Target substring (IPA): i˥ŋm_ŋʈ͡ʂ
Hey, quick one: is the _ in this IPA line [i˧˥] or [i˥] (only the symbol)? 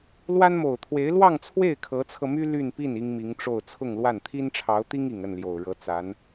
i˧˥